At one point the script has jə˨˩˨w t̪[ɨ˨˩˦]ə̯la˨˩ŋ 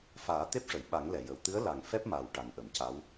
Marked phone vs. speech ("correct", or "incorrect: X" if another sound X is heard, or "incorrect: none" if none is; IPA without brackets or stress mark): incorrect: ɨ˧˥